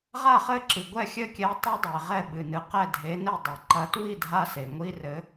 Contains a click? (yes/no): yes